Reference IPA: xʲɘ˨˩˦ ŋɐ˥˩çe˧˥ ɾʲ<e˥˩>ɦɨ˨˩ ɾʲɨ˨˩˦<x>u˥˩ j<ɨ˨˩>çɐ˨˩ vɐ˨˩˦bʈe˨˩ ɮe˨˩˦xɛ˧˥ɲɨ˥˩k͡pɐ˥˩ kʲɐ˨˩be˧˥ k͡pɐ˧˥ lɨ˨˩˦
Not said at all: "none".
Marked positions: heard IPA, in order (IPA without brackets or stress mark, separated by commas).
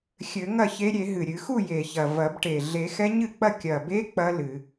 e˨˩˦, x, e˨˩